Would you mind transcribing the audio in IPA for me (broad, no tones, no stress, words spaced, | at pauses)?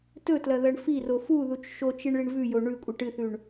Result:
tɵtlɐ ðɐɳfiro fuðut͡ʃ ʃot͡ʃiɳ ɭiɳvʉjo ɳʉ kʷʼɨʈɨθʉɳ